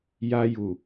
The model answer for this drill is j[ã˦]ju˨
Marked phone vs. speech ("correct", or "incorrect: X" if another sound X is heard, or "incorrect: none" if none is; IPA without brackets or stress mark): incorrect: a˦